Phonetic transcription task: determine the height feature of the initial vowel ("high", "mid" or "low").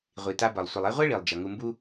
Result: high